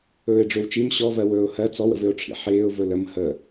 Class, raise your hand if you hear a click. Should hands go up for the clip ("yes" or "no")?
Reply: no